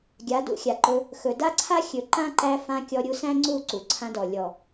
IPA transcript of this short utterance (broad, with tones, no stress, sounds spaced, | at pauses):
ɡʲ a˨˦ d ṵ˧ xʲ a˨ ǃ ɵ˧ | x ɵ˨ d a˦ ǀʰ a˦ xʲ ɵ˨ ǃ ã˦ ǃ æ˧ f ã˧ kʲ ɔ˧ ɾʲ u˧ s æ̃˦ ŋ͡ǀ u˦˨ ǀ u˨ ǀʰ ã˧ d ɔ˨ lʲ ɔ˨